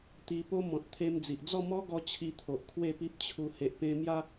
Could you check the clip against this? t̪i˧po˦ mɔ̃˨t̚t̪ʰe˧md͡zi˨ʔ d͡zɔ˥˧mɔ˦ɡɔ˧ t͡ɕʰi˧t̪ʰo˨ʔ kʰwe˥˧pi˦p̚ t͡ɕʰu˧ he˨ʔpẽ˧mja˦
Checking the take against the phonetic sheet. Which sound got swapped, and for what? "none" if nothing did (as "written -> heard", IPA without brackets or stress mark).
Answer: none